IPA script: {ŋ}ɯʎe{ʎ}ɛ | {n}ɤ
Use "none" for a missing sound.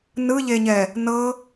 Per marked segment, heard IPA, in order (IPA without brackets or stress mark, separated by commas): n, ɲ, n